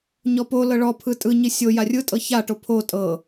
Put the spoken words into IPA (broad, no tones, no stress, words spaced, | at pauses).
ɲɔpolɤ ɭɔpʰɯ tʼɯɲi sʲo jarʲɯtʼɤ çaʈo pʰo tʼɤ